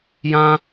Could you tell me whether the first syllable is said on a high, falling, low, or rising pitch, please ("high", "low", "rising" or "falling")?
high